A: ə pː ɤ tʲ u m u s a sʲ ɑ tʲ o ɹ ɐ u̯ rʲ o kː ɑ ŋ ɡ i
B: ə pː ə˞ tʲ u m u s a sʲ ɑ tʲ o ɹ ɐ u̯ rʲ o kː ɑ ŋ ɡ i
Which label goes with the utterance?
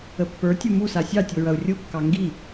B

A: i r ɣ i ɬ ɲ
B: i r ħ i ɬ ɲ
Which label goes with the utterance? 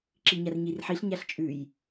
B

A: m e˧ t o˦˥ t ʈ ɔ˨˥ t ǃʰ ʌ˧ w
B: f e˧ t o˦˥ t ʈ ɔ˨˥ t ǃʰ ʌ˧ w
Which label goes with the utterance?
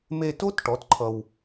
A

